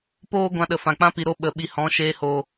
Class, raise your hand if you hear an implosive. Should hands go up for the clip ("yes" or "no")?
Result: yes